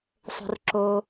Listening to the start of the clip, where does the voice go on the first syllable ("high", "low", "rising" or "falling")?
low